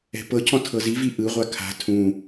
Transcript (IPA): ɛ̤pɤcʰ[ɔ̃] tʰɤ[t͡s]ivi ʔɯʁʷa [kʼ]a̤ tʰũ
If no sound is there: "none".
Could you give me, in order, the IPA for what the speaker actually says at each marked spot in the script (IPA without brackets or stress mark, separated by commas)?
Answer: ɔ̃, z, kʰ